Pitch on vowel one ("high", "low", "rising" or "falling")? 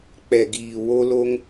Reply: low